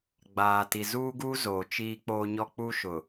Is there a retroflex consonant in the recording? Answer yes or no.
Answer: no